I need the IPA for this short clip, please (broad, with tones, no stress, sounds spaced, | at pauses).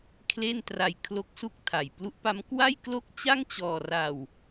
kʰ l e˥˩ n t r a˧ j kʰ l o˦˥ k̚ s u˥˩ k̚ tʰ a˨˩ j p l u˦˥ ʔ p a˦˥ m k w a˥˩ j k l o˥˩ k̚ t͡ɕ a˥˩ ŋ t͡ɕ ɔː˧ r a˧ w